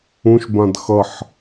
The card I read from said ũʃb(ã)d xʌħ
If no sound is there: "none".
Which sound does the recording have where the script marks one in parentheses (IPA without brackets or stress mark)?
ã